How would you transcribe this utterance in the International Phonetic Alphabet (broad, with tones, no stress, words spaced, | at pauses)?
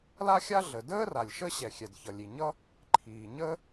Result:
la˥xʲa˥ ɮə˩dəː˥ ra˩lʲʃə˥ɕɛ˩ xʲɛ˩dçʌ˩lʲi˩ ɲʌ˥ | ǃʰiː˩ɲə˥